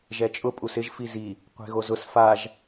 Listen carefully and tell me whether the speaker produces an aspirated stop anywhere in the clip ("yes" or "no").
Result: no